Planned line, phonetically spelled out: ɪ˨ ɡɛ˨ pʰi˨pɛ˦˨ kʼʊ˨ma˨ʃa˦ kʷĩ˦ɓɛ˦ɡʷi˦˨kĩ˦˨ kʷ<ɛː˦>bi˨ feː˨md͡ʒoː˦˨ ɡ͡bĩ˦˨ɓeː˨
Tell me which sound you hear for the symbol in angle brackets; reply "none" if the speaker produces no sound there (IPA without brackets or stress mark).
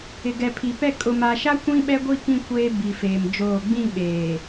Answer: eː˦